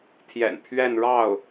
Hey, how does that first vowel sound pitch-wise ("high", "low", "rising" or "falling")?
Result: low